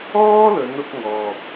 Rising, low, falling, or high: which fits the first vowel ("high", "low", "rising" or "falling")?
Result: high